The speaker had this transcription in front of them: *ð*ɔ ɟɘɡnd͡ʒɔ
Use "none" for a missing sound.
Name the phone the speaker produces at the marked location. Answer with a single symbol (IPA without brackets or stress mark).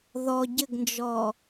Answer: ð